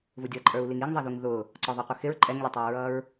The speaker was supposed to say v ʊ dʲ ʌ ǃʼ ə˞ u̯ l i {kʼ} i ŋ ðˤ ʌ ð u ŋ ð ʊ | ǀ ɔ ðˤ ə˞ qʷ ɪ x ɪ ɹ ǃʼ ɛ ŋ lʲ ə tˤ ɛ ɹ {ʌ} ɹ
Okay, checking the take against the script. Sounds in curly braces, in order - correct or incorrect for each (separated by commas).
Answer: incorrect, correct